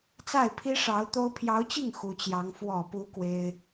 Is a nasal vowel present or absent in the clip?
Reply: absent